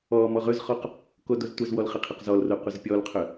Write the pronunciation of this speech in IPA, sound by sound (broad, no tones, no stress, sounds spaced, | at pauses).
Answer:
ɔ m ɔ ʁ ɵ z χ ɔ q | k o d o z tʷ ə z w ɔ l χ ə qʰ ə q z ɔ l r o qʷ ə z pʲ ɔ l qʰ ɵ